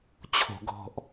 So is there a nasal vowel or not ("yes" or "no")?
no